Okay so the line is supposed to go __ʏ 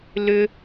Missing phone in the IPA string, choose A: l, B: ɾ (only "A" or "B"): A